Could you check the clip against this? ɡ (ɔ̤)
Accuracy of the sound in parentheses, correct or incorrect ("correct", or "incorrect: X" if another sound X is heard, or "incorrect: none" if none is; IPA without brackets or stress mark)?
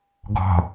correct